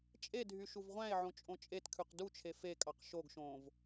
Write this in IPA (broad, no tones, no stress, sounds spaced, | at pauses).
t͡ʃʼ e dʱ y ʃ u v ʁʷ æ̃ e̯ ʕ õ t͡ʃʼ õ t͡ʃʼ e t kʰ ʉ q d u t͡ʃʰ e f e kʼ ɑ q ʃ o ɡ ʃ õː v